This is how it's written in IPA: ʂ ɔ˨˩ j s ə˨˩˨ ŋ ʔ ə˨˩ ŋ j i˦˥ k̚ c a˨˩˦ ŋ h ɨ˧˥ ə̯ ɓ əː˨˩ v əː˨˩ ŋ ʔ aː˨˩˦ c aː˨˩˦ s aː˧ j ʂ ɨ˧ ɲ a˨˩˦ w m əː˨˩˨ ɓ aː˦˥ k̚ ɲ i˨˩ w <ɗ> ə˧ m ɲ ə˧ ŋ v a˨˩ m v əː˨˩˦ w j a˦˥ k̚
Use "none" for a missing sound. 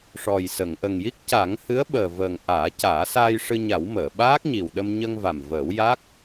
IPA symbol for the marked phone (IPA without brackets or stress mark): ɗ